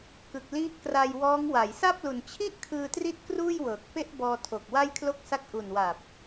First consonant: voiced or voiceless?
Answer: voiceless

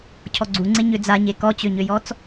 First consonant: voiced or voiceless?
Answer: voiceless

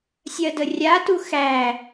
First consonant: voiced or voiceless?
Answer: voiceless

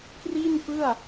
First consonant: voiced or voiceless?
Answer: voiceless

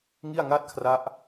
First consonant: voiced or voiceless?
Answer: voiced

